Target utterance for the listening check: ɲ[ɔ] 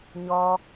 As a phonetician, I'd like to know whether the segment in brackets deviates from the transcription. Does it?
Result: no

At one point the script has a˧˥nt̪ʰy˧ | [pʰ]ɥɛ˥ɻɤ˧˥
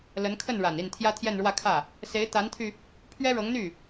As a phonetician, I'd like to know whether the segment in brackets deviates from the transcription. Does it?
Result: no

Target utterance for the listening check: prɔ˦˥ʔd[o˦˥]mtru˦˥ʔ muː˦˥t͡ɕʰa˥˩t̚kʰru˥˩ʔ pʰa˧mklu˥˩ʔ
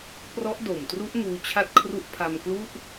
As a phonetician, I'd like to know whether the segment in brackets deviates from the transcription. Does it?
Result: yes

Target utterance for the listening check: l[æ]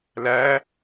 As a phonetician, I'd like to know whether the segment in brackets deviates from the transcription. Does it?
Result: no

